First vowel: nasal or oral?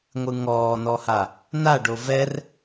oral